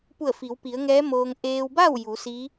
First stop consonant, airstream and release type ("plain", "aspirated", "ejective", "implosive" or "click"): plain